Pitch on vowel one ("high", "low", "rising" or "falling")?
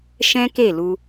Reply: high